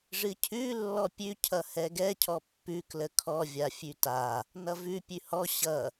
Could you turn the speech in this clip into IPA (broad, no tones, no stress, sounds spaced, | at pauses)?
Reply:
ʐ ɨ cʰ ʉ lː ɔ pʲ ʉ cʰ ʌ h ɛ ɡ ɛ cʰ ɔ pː ʉ k l ə kʰ ɔ vʲ a fʲ ʉ t a | n ʌ v ʉ pʲ ʉ h ɔ ɕ ʌ